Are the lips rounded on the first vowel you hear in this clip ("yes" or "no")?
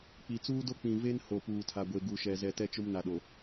no